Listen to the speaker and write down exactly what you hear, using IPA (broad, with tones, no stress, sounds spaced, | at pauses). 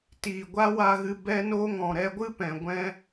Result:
t iː˨ ɡʷ a˦ w a˧ ɣ ɨ˧ b ɛ˦ n o˦ ŋ ɔ̃˨ ɾ ɛ˧ ɡʷ ɨ˦ p ɛ̃˨ ɡʷ ɛ̃˦